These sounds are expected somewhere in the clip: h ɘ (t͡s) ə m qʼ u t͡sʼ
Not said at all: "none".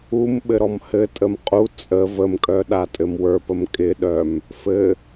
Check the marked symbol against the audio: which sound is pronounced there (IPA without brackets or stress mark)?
tʼ